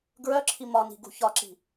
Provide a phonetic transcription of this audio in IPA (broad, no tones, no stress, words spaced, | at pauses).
ɡɹœǁʰi mɒni̤ ɡṳçɒǁi̤